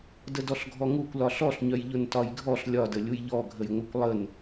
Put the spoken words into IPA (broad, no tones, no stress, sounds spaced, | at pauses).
d ə d ɔ ɬ ɡʱ ɔ ŋ u kʷ l ɒ ɬ ɔ ɬ ɲ œ j ʎ ʊ n t ɒ j ɡʱ ɔ ɬ lʲ ɒ d ə lʲ u j ʎ ɔ ɡʱ ə j ŋʷ œ kʷ lˠ ə n